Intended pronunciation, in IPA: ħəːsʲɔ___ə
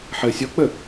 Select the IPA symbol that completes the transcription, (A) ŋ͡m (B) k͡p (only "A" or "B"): B